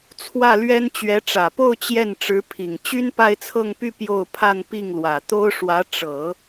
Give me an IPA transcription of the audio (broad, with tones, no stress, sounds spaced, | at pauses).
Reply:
t͡sʰ w ä˥˩ l ɥ ɛ˥ n t͡ɕ ɥ ɛ˧˥ ʈ͡ʂ ä˨˩ p o˥˧ ʊ̯ t͡ɕ j ɛ˥˩ n ʈ͡ʂ ɻ̩˧˥ pʰ i˨˩ ŋ t͡ɕ y˥ n p a˥˧ ɪ̯ t͡sʰ ɤ˥˧ ŋ p y˥˧ p j o˥˧ ʊ̯ pʰ a˥˧ n p i˥˩ ŋ l w ä˨˩ t̪ o˥ ʊ̯ ʂ w ä˧˥ ʈ͡ʂ ɤ˨˩˦